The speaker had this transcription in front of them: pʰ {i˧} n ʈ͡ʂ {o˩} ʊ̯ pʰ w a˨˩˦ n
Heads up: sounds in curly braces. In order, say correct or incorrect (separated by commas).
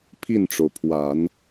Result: incorrect, correct